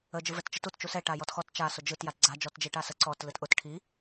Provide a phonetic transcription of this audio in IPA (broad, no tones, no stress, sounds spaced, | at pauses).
ə d͡ʒ ɯ v ɛ t t͡ʃ ə t u t t͡ʃ u s ɛ ʈ a j ɔ t x ɔ t t͡ʃ a s ʊ d͡ʒ ɯ t j a t ɡ͡ǀ a d͡ʒ ɔ t d͡ʒ i ʈ a s ə ǀ ɔ t l ɯ t ʔ ʊ t ʈʰ i